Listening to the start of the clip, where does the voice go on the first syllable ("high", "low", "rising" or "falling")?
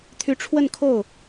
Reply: rising